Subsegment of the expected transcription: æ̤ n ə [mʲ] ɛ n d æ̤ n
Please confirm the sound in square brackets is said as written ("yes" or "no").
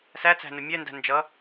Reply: yes